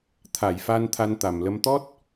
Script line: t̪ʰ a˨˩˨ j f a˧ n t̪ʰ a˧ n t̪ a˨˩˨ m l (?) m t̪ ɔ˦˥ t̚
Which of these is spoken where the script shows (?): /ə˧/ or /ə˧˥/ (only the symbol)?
ə˧˥